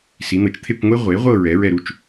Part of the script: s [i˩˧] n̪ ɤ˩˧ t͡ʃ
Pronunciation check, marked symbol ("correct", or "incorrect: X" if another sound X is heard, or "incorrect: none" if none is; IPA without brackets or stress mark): correct